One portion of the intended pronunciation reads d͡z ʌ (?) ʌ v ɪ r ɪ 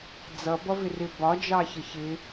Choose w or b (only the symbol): b